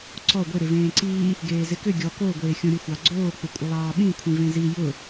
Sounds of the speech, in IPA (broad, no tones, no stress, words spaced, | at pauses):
ǀɔ ɡʷɪ ɾɪvẽːǀiː | ɡeːzɪkʏ ɡʲɔ ko ɡʷeːxʲõɾʲʊ xʷɑɡ͡ǀoː k͡pɪkʷʼɪlˠɑːɓĩ kʷʰĩvẽzi jʊ